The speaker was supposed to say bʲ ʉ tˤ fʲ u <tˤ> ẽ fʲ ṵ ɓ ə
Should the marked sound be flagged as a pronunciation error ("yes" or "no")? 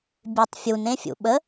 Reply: yes